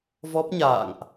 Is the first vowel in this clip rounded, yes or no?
yes